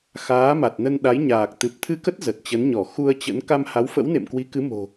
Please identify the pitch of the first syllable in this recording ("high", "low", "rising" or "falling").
rising